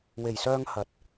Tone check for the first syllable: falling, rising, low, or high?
low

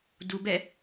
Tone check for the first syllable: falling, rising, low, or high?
low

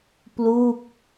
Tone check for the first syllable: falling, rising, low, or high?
falling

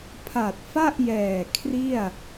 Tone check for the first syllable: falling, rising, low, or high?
low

